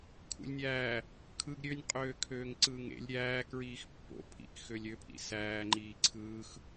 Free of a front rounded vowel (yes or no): no